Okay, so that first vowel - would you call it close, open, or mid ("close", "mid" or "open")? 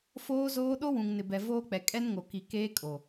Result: mid